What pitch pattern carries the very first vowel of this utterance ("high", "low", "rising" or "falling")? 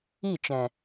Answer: falling